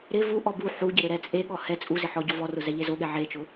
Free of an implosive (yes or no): no